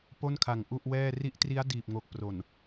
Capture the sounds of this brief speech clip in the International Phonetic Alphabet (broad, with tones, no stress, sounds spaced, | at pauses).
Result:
p o˥˩ n kʰ a˨˩ ŋ ʔ u˥˩ ʔ w ɛː˥˩ r i˦˥ ʔ t r i˦˥ a̯ d iː˨˩ p̚ ŋ o˨˩ k̚ p r o˨˩ n